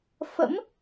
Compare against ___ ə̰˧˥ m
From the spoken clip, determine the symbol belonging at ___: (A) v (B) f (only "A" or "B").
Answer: B